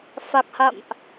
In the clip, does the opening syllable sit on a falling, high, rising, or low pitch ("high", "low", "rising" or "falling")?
low